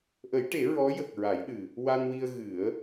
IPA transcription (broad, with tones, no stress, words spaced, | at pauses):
ʔə˨˩˦jʈe˨˩˦ ɹɔ˧˥jə˨˩k̚ ɹa˨˩˦jɗɨ˨˩ | wa˧nwi˧ə̯ ɣɨ˨˩˦ə̯